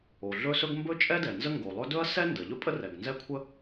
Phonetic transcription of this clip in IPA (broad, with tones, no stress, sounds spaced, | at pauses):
o˩ ɮ ɵ˥ s ɵ˥ ɡ m b ɵ˥ t͡ʃʼ ɛ˥ d ɛ˩ n z ə˥ ŋ ɡ o˩ lˠ ɵ˥ d ɵ˥ ɐ̯ s ɛ˥ n d ə˩ ʎ ɵ˥ pʼ ə˥ r ɛ˩ ɡ n z ɛ˥ kʷʰ ə˥